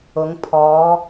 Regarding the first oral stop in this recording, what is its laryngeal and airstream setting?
aspirated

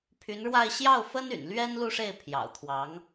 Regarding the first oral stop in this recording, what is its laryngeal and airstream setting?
aspirated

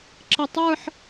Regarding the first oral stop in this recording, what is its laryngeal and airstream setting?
click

